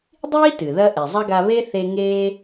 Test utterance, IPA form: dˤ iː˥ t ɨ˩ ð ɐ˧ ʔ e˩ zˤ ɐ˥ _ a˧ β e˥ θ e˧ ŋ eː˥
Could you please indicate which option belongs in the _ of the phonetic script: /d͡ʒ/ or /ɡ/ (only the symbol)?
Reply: ɡ